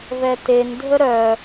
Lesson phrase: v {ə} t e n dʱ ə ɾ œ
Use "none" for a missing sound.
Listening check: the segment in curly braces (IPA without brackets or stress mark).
ɛ